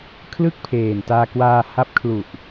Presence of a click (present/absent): absent